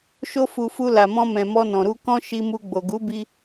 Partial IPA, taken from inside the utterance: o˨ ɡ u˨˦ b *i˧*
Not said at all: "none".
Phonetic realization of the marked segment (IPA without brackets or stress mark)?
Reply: i˧